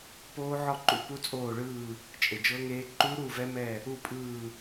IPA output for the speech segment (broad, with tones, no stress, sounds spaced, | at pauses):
p oː˦˥ ʕ ɔ˥˧ ǃ ṵ˦˥ p u˦˥ t͡sʼ oː˥˧ ɭ ɯː˥˧ | t͡ʃʼ e˨ d͡ʒ ɤ˦˥ ŋ eː˦˥ ǃ u˦˥ ɾ u˥˧ v ɛ˦˥ m ɛ˥˧ | u˥˧ pʼ ɯː˥˧